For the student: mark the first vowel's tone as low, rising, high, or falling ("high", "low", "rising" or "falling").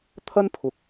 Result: high